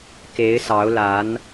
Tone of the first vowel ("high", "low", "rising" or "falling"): rising